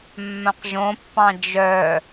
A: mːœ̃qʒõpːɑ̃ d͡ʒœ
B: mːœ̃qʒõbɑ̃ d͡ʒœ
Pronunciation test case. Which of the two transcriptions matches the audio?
A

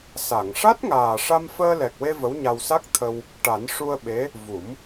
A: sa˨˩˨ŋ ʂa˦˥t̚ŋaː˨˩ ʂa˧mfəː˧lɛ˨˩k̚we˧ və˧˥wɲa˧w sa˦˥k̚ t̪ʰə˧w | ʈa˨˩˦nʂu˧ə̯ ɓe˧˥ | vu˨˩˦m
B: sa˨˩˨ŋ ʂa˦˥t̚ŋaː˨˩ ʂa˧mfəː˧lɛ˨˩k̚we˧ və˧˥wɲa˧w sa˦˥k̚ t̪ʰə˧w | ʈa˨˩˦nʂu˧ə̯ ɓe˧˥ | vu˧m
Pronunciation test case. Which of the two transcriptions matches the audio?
A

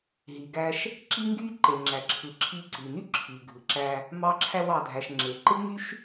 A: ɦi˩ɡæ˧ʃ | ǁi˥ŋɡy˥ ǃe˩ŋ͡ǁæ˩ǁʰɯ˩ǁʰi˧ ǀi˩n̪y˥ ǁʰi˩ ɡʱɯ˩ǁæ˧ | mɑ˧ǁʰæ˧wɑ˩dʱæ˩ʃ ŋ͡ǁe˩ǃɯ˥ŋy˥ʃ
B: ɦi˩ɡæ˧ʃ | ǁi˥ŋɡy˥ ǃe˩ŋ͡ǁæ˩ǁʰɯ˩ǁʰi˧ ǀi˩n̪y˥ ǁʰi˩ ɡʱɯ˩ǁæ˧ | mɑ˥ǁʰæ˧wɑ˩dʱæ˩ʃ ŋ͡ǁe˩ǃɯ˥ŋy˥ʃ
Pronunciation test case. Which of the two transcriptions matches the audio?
A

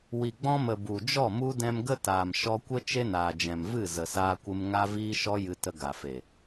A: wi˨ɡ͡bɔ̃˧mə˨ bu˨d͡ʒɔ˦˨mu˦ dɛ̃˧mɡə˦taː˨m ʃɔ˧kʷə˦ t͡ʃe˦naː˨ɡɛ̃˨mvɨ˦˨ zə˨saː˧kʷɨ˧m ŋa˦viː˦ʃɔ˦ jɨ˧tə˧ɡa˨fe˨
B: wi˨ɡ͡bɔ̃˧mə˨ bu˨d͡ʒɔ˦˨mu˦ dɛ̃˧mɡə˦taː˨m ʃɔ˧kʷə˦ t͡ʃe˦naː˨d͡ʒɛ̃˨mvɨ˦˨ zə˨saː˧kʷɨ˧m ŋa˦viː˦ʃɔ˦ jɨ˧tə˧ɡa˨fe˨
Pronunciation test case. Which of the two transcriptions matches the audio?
B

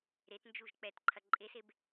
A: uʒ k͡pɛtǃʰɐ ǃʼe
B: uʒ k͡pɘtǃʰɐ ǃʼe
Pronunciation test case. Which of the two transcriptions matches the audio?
A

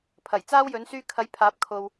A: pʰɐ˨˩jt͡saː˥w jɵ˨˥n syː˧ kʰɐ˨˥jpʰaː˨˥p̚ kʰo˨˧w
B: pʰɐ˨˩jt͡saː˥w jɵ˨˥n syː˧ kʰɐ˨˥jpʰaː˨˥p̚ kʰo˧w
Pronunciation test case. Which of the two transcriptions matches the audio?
B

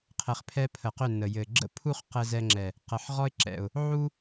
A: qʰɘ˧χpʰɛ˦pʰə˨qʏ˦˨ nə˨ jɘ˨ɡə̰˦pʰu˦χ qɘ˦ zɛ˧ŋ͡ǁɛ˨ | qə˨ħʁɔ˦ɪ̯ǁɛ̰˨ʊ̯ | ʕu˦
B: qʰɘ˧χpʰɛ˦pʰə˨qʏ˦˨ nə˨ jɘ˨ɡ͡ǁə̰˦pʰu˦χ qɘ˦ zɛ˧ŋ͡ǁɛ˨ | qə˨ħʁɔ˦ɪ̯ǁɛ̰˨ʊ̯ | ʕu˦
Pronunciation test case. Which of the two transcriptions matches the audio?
B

